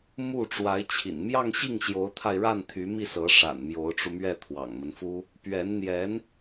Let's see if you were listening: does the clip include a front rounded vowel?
yes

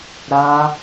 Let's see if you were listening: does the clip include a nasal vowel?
no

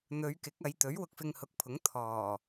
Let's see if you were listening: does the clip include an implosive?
no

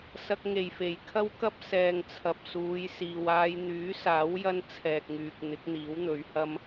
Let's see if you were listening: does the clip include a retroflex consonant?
no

